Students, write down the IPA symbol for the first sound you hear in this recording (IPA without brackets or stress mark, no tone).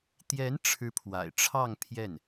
t̪